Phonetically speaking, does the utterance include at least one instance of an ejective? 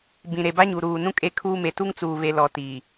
yes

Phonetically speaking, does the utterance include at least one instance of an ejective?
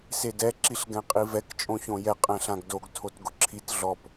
yes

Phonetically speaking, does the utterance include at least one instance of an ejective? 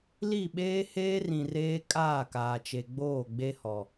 yes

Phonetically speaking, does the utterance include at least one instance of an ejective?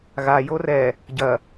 no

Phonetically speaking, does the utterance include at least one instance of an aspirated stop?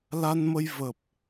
no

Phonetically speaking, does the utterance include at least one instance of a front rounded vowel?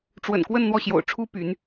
yes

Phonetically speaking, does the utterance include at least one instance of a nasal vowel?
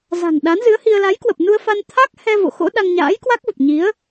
no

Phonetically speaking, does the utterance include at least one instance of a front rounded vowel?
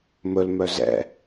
yes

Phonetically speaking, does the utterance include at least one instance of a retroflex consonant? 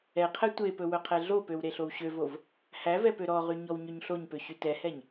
no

